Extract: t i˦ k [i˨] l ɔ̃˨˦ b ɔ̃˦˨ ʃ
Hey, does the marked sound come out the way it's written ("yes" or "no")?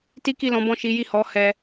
no